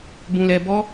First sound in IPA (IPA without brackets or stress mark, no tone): b